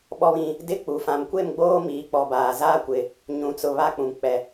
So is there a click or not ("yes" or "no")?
no